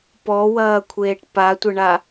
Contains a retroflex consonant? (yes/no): yes